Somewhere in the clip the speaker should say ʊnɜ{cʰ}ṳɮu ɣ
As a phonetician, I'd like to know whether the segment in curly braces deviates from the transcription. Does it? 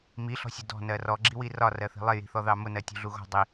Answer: yes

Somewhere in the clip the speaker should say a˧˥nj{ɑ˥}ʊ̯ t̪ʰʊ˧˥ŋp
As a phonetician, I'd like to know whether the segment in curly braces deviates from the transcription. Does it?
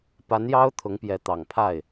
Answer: no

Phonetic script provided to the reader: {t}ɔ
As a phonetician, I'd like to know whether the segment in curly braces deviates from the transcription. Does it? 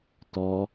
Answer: no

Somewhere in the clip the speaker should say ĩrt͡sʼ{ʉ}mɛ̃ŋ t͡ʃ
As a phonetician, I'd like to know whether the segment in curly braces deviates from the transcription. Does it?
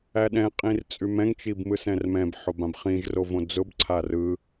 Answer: no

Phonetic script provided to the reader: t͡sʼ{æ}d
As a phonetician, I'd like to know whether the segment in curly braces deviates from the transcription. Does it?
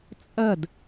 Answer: yes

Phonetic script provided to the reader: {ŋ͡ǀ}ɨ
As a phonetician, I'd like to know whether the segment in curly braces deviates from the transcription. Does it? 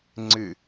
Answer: no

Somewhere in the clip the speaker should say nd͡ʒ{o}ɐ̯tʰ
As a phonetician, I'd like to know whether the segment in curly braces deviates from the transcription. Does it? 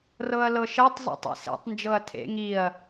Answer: yes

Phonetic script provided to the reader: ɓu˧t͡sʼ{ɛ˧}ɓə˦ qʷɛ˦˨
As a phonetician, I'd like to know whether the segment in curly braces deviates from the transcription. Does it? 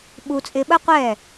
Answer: yes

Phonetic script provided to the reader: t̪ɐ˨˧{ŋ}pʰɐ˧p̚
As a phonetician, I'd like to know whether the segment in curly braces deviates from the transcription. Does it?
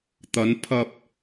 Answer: yes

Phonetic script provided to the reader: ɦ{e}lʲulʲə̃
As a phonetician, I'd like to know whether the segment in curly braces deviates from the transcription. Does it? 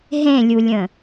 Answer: yes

